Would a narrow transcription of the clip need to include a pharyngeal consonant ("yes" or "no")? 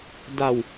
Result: no